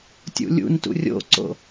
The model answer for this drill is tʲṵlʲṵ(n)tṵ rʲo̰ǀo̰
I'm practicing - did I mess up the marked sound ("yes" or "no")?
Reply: no